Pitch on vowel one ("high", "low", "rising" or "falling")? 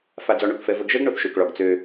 low